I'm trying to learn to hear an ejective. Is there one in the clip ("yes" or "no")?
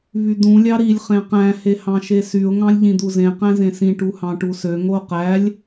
no